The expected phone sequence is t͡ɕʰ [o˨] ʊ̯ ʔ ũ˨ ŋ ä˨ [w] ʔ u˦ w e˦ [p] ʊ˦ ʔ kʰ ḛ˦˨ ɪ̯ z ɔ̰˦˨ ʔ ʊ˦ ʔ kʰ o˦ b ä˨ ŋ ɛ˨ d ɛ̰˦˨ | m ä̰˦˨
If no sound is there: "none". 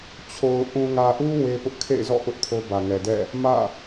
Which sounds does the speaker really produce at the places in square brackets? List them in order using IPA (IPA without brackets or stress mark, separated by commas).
o˨, none, p